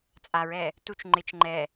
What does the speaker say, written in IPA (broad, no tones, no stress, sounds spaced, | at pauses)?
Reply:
t͡sʼ a ɹ ɛ | t u t͡ʃ ŋ͡ǃ ɪ t͡ʃ ŋ͡ǃ ɛ